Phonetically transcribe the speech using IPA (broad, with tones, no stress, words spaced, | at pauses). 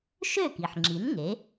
ʃø˥˩ki˩ħŋ͡ǁi˩˥n ŋe˩˥